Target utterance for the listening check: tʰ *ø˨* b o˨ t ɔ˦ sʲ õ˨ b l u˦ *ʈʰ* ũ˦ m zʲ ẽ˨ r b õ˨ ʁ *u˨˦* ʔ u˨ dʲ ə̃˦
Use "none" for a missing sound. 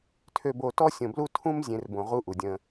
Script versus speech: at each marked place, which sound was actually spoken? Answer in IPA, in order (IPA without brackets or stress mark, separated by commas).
ø˨, tʰ, u˦